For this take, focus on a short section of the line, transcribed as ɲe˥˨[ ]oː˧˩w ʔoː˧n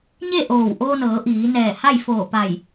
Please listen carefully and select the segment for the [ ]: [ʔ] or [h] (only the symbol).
ʔ